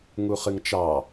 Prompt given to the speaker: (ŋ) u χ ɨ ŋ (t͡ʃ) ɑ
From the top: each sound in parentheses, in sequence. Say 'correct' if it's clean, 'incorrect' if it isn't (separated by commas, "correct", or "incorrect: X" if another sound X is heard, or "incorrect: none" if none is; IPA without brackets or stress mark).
correct, correct